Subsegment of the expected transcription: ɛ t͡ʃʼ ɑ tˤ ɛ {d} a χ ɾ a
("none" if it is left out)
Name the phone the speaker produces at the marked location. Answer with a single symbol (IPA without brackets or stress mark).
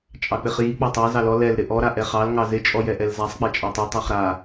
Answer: tˤ